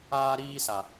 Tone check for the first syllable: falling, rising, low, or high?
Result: high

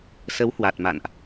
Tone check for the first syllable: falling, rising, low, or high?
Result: rising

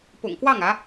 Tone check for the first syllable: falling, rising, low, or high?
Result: low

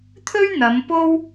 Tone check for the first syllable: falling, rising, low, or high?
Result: high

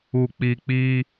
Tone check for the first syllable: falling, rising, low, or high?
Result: low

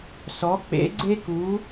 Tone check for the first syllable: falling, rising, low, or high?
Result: rising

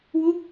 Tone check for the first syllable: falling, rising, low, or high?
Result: falling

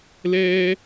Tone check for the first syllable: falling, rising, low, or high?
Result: high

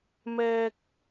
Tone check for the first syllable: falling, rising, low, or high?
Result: high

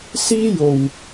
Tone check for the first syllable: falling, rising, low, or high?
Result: high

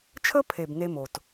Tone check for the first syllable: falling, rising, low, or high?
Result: high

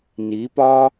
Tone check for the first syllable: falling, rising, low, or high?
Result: rising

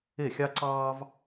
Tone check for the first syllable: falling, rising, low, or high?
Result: falling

